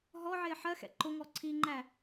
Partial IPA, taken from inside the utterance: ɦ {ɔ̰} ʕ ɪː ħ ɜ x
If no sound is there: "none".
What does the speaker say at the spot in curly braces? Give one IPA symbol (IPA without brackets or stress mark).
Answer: ɔ